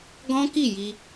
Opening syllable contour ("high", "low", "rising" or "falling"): high